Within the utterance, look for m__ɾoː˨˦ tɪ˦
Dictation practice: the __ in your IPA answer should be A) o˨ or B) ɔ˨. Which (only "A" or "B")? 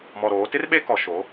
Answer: B